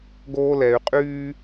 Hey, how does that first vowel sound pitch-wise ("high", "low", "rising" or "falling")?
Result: high